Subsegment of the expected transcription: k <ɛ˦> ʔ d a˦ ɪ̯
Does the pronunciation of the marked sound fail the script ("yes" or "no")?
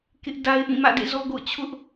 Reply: yes